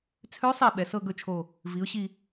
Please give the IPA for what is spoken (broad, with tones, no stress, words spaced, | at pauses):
t͡sʰø˧˥sˤi˧˩ ɓɛ˩˧sɤ˥˧ɡɵ˥˩t͡ʃʰo˧˩ | vi˩˧ʊ̯ɕi˧˩